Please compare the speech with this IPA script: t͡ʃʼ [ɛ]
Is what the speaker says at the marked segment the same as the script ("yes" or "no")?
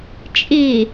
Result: no